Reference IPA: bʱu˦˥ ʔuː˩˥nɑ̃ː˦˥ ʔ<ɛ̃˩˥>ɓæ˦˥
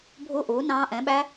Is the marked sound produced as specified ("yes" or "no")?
yes